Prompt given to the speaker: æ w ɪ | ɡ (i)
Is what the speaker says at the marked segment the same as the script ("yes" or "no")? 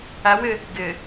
no